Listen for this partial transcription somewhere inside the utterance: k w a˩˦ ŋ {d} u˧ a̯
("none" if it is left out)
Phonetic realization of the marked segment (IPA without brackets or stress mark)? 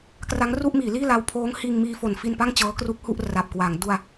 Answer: d